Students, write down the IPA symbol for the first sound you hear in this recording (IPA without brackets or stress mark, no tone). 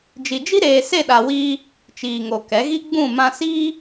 d͡ʒ